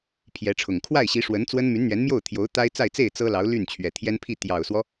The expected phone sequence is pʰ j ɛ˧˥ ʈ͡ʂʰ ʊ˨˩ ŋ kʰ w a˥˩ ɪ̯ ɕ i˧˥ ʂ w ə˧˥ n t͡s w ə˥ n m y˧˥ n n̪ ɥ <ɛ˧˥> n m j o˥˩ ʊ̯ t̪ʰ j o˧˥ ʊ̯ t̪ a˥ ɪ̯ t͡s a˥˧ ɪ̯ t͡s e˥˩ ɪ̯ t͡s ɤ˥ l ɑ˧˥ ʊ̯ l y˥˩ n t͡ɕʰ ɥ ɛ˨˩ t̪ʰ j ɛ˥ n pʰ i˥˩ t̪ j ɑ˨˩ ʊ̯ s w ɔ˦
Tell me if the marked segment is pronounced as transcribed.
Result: yes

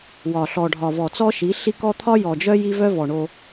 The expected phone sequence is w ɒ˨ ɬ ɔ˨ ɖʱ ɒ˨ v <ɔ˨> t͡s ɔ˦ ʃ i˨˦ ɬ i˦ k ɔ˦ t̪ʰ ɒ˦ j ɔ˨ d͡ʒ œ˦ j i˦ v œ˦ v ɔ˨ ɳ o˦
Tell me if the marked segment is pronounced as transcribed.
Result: yes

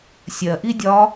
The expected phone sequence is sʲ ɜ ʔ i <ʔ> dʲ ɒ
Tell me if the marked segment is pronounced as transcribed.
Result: no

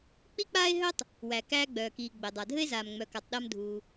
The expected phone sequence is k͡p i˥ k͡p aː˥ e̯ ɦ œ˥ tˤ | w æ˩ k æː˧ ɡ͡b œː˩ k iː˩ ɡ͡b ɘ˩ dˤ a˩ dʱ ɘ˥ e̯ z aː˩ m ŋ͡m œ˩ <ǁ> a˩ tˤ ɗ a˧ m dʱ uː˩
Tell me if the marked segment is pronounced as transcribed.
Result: no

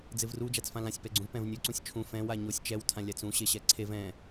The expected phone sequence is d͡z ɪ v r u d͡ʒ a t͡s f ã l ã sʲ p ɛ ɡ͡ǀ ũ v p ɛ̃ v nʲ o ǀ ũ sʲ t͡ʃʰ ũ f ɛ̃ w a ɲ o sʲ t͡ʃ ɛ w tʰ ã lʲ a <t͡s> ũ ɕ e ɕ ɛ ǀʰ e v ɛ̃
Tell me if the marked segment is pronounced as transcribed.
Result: yes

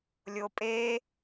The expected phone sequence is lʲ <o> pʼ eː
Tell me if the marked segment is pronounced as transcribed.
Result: no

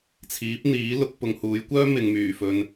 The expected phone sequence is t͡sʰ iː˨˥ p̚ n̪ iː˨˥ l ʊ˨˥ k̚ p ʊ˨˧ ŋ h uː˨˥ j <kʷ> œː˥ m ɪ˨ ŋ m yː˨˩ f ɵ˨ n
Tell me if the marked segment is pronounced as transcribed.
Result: yes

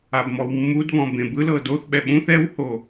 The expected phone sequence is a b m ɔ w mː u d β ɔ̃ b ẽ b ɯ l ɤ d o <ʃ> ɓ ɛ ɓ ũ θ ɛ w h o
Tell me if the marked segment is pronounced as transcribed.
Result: no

